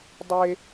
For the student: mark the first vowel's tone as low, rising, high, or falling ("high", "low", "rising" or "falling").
high